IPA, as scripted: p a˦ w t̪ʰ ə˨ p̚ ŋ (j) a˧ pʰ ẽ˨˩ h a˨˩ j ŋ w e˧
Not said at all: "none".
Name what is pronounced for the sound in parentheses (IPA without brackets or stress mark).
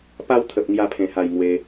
j